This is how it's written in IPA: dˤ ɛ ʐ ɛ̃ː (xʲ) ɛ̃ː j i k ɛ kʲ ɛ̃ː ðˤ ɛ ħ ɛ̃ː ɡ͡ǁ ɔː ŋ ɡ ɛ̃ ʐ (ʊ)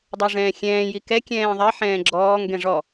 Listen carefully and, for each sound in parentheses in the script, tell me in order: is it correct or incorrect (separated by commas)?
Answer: correct, incorrect